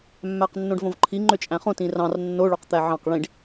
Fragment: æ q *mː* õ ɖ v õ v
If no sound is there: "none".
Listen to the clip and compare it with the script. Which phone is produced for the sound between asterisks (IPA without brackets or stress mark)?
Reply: nː